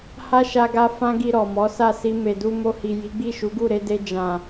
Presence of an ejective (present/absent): absent